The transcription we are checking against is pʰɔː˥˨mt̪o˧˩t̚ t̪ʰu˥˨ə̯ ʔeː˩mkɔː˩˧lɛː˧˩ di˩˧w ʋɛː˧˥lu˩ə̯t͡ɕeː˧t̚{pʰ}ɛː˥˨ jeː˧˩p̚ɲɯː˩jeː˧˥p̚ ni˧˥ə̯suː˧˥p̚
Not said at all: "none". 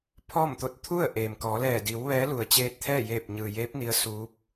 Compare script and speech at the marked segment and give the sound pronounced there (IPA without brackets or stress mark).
t̪ʰ